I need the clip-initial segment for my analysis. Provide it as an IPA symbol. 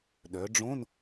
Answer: ɗ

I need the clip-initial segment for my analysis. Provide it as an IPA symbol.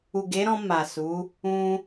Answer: u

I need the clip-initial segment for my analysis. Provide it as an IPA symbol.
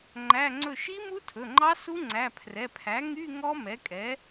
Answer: ŋ͡ǃ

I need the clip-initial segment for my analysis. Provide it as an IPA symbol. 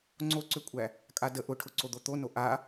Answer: ŋ͡ǀ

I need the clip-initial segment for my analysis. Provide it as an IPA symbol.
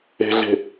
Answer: e̤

